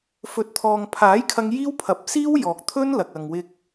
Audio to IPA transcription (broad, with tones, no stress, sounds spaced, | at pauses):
f ɵ˨˥ t̚ t̪ʰ ɔː˨ ŋ pʰ aː˨˥ j kʰ ɐ˧ ŋ j iː˥ w pʰ ɐ˨˥ p̚ s iː˥ w j ɔː˨ k̚ t̪ʰ ɵ˥ n l ɐ˨ k̚ ɐ˨ ŋ w ɪ˧ k̚